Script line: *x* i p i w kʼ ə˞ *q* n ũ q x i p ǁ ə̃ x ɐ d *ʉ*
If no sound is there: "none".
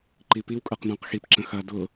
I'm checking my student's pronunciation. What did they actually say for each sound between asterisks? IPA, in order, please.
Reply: ǃ, q, ʊ

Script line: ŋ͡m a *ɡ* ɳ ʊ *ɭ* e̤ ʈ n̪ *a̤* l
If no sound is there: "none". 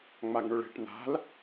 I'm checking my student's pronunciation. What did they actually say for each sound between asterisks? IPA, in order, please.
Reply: ɡ, ɭ, a̤

